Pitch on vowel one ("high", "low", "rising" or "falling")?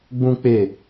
high